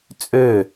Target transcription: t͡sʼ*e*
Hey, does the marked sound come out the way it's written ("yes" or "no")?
no